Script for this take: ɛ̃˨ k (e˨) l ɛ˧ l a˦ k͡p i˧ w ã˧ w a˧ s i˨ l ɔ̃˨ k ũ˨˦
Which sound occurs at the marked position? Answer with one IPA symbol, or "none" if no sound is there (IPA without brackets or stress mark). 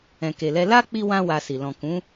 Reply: e˨